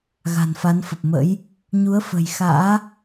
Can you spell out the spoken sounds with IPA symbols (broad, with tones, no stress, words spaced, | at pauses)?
ɣa̤˨˩nfa˨˦nfə˨˩p̚mə̰˧˥j | ɲu˨˦ə̯fə̤˨˩jxa̰ː˧˥